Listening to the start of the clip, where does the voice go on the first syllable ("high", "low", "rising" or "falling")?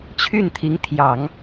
falling